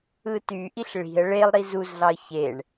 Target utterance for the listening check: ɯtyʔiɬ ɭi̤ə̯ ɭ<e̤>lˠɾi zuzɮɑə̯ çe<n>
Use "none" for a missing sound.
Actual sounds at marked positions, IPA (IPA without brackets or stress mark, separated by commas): e, ɳ